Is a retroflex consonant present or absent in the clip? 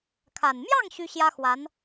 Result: absent